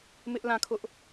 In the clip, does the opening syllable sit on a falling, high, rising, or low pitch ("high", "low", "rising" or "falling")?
high